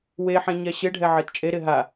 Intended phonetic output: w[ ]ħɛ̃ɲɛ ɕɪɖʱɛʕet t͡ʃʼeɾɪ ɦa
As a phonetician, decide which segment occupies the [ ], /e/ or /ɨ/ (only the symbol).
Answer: e